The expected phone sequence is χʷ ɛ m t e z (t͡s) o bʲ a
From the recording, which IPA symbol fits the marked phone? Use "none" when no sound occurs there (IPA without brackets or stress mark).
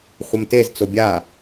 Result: t͡s